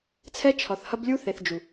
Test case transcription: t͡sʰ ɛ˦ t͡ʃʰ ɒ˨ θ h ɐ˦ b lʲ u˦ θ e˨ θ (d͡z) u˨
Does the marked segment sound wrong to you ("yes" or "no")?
yes